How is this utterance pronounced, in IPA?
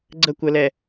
ɡ͡ǀ ə kʷ ə l ɛ

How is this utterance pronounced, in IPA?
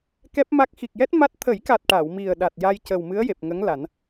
k ɛ˦˥ p̚ m a˦˥ k̚ x i˨˩ k̚ j ɛ˦˥ t̚ m a˦˥ t̚ t̪ʰ ə˨˩˦ j k a˨˩ t̚ ʈ a˨˩˨ w m i˨˩ ə̯ ɗ a˨˩ t̚ j a˧ j c ə˨˩ w m ɨ˧˥ ə̯ j e˨˩ p̚ ŋ ə˧˥ ŋ l a˨˩˦ n

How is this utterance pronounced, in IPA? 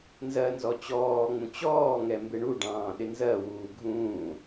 n z ɜ n z ɔ t͡ɕ ɔː ŋ͡m ũ t͡ɕ ɔː ŋ ɛ m b ɪ ɳ u ɖ ɑ̃ː ɗ ɪ n z ɜ w uː ɡʱ ũː

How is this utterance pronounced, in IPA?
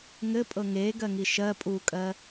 ŋ ɘ pʼ ɤ ŋ eː ɡ ɜ ŋ i ʃ ɜ pʼ uː kʼ ɜ

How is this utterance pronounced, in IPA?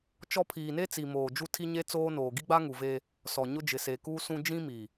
t͡ʃ ɔ˦ pʰ iː˨ n e˦ t͡s i˨ m oː˨ d͡ʒ u˦ tʰ i˦ ɲ e˦ t͡s oː˦ n oː˨ ɡ i˦ ɡ͡b a˦ ŋ u˨ v e˦ | s ɔ˨ ɲ ʊ˦ d͡ʒ ɪ˨ s e˨ k uː˦ s ũ˦ d͡ʒ ĩ˦ m i˨

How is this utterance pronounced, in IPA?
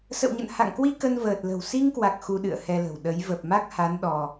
s ə̰˧˨ w ɲ ə̰˧˨ n h a̰˧˨ ŋ k w i˧ k ə˧ n v əː˨˩ t̚ l ə̤˨˩ w s i˧ ŋ k w a˨˩ k̚ x u˧ ɗ ɨ̰˧˨ ə̯ h ɛ˧ l ə̤˨˩ w ɗ ə˨˦ j v ə˨˩ p̚ m a˦˥ k̚ h a˨˦ n ɗ ɔ˧

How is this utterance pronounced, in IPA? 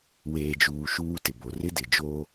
w eː˨ d͡ʒ uː˨ ʃ uː˦ t ɪ˨ b o˨ r ɪ˦ d ɪ˨ d͡ʒ o˦

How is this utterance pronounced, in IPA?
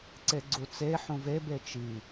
ǀ e ɡ͡ǀ u t͡s e ħ ũ v e b e t͡ʃ i

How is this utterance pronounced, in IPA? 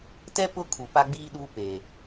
t ɛ˦ p ʊ˦ kʰ u˨ p a˦ ɡ͡b iː˦ ɗ uː˦ p e˨

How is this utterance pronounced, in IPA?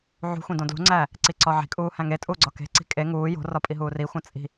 ʕ ṳ xʷ ĩ d õ d l ṳ ŋ͡ǀ æː | ǀ i ǀ ɒ ʕ i̤ kʼ uː h æ̃ ŋ e tʼ uː ɡ͡ǀ ɒ k e̤ ǀ i̤ kʼ e ŋ uː j o̤ r ɒ pʼ i ɦ uː r i xʷ æ̃ t͡sʼ i̤

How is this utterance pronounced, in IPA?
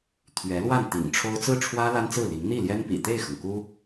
t̪ʰ ɥ ɛ˧˥ l w a˥˩ n t̪ ḭ˨˩ ŋ ʈ͡ʂʰ o˥ ʊ̯ t͡s ɹ̩˥˩ ʈ͡ʂʰ w ä˥ l a˥ n t͡s ɹ̩˥˩ l i˧˥ ŋ n̪ i˥˩ l j ɛ˥ n p ḭ˨˩ t̪ e˥˩ ɪ̯ x ɤ˩ ŋ k u˥

